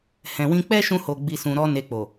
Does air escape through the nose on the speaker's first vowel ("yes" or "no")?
yes